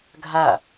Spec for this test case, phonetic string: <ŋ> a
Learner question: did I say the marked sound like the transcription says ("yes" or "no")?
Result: no